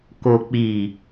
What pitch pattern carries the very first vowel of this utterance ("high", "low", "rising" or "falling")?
low